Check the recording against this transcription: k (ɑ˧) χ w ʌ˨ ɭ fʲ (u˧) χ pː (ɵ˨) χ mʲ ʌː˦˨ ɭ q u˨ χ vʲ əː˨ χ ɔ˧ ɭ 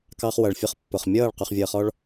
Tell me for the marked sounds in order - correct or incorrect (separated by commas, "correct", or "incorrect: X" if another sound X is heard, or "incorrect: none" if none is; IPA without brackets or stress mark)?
correct, incorrect: ʊ˧, incorrect: ʊ˨